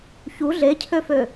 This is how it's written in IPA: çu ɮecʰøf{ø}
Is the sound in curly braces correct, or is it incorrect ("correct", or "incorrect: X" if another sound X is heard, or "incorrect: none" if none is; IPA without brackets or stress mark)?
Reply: correct